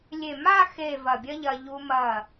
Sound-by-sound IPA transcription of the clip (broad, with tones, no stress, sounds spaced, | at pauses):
lʲ e˧˩ m a˥˧ x e˧˩ v ɐ˧˩ bʲ ɐ˥ ʎ ɐ˧ ʎ u˧ m ɐ˧˩